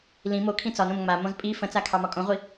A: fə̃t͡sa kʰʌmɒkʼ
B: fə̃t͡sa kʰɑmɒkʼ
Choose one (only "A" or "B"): B